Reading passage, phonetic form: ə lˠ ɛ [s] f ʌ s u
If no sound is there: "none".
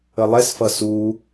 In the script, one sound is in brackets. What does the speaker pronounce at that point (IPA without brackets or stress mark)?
s